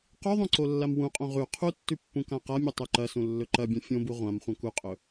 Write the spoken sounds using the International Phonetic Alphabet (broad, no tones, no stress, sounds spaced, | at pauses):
q ʉ ðˤ õ ǀ o lː a m w ũ qʼ õ ʁ ʉ qʰ u tː ʉ pː ũ k ã q a mʲ ɵ tˤ ʉ ǃ ɐ s ũ lː ɵ ǃ ɐ bʲ ɐ̃ fʲ õ b u ʁʷ ã m χʷ ɐ̃ k u qʼ ɵ